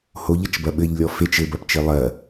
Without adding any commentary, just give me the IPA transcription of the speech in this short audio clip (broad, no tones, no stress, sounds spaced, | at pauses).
h o ʎ ɐ t͡ʃ b ɐ ɓ ɘ ʎ lʲ ɔ f e t͡ʃ ɘ b ɐ p t͡ʃ e lˠ ɐ